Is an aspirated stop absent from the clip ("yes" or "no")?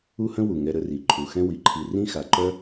no